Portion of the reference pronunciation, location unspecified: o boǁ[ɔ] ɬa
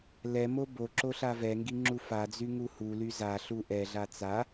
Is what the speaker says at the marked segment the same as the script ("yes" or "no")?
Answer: no